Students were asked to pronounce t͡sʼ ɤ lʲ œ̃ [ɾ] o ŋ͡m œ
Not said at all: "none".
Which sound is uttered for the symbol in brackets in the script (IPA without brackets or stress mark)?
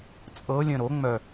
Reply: ɾ